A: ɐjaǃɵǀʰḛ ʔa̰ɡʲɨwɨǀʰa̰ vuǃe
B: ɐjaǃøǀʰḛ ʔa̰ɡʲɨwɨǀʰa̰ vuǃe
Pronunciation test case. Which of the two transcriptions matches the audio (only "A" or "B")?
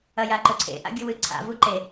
A